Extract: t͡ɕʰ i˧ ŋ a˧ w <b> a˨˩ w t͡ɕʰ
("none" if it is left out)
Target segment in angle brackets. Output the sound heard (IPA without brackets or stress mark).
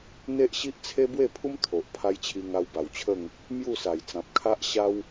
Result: b